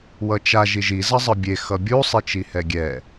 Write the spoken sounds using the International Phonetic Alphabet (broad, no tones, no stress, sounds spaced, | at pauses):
w ʌ t͡ʃ a ʒ i ʒ i z ʌ zˤ ɯ bʲ e x ʌ bʲ u sˤ i t͡ʃ i h ɛ ɡʲ ɛ